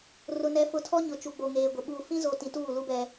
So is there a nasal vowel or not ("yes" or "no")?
yes